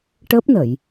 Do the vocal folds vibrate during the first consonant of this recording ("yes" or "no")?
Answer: no